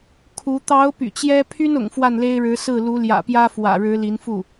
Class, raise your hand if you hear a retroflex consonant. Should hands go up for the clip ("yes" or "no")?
yes